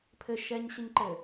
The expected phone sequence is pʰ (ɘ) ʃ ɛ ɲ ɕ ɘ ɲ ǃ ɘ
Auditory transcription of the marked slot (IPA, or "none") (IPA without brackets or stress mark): ɘ